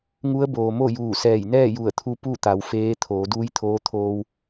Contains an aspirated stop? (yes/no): yes